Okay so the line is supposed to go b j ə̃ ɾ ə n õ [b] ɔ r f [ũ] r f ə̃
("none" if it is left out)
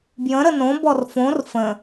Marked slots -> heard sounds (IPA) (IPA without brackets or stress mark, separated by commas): b, õ